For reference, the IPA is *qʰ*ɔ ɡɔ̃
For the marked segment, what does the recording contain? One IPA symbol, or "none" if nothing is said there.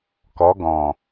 k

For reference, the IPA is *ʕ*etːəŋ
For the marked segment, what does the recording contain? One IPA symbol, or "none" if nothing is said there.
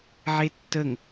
ʕ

